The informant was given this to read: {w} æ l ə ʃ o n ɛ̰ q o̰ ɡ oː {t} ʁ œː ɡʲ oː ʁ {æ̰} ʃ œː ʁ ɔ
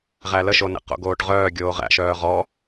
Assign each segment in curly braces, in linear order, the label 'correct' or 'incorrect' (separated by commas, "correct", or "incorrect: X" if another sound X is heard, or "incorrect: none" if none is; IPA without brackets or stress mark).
incorrect: ʁ, incorrect: ʈ, correct